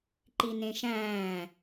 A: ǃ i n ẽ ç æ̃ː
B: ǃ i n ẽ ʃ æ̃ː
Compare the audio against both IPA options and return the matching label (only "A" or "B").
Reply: B